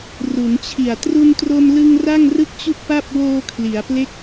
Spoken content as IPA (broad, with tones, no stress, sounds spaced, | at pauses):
r u˩˦ n t͡ɕʰ i˨˩ a̯ t r u˧ n t r o˧ m l ɯ˧ ŋ r a˥˩ ŋ r ɯ˥˩ k̚ t͡ɕ u˥˩ k̚ p a˥˩ p̚ w oː˧ kʰ l i˩˦ a̯ p l e˦˥ k̚